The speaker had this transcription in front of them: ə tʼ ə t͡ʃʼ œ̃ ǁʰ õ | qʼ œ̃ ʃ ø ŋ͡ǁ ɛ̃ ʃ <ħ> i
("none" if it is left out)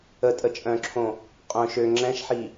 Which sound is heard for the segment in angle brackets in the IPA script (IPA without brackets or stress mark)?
ħ